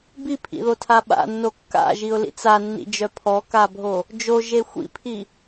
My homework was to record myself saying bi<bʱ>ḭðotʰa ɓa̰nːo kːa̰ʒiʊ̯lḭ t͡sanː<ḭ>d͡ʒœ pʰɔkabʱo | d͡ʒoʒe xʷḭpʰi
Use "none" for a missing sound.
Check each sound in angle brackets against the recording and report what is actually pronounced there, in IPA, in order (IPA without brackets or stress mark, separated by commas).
pʰ, ḭ